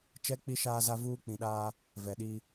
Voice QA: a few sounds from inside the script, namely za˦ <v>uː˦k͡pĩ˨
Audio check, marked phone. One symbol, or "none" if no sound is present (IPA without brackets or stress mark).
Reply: v